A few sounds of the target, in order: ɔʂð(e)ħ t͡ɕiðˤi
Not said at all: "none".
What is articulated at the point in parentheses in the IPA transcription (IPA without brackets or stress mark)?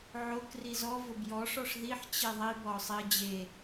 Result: i